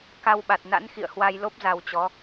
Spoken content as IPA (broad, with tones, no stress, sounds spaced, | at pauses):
k a˧ w ɓ a˨˩ t̚ n a̰˧˥ n x ḭ˧˨ ə̯ h w a˧ j l o˦˥ p̚ z a˧ w t͡ɕ ɔ˨˦